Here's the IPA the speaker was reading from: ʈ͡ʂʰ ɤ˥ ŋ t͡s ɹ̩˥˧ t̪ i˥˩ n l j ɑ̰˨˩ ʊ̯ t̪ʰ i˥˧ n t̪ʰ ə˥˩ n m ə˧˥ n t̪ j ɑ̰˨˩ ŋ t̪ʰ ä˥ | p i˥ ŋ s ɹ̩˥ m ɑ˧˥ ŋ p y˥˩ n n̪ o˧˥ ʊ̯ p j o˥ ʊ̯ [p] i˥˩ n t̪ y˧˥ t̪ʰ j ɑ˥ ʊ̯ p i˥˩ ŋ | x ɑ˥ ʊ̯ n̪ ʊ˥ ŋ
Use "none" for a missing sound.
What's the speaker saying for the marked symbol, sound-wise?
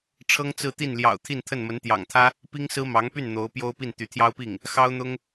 p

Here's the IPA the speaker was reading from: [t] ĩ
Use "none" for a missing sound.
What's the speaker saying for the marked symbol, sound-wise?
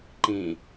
ǃ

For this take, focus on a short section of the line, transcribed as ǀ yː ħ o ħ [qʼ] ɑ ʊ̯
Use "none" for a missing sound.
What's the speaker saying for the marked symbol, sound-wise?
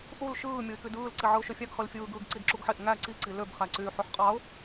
qʼ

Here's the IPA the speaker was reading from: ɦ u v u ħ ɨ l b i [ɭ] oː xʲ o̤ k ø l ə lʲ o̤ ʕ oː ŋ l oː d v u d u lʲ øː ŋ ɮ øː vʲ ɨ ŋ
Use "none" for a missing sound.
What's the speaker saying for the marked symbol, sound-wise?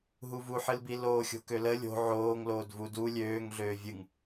l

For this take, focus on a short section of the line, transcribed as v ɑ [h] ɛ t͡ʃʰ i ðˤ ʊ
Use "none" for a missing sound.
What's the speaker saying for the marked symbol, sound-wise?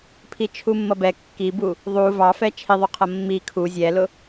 f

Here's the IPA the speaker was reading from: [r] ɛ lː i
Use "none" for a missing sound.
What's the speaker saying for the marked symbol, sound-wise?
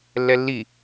lː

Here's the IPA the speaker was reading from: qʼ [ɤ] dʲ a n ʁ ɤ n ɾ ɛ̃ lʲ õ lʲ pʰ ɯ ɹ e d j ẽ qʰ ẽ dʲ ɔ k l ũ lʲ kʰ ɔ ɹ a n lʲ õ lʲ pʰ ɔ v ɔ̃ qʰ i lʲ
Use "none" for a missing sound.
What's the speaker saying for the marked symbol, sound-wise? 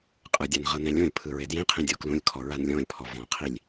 ɯ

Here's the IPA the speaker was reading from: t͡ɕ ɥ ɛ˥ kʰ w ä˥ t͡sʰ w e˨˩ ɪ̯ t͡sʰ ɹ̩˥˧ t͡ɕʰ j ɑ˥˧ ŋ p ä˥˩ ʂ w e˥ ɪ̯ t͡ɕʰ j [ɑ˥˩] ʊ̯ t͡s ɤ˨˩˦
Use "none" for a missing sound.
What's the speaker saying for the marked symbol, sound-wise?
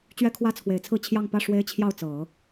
ɑ˥˩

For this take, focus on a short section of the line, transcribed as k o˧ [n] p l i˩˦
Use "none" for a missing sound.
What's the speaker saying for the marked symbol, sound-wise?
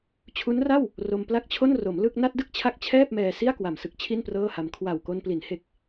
n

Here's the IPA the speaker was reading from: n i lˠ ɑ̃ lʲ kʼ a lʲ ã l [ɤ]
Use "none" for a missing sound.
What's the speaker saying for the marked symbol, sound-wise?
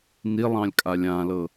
ɤ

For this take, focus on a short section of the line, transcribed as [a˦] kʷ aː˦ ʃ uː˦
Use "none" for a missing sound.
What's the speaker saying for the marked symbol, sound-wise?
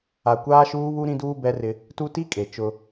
a˨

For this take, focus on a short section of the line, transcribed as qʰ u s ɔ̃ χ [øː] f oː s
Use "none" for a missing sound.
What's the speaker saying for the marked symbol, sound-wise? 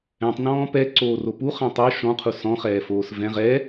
ɛː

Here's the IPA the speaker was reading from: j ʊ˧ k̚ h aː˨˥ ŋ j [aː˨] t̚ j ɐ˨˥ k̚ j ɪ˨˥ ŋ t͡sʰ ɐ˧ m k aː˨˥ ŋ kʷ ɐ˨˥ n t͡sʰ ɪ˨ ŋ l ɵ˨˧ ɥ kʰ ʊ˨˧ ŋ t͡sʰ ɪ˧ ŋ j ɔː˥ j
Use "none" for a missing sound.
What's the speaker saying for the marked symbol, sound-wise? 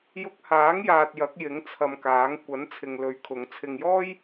aː˨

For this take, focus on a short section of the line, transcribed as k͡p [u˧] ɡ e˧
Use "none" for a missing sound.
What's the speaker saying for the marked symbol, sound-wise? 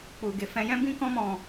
u˧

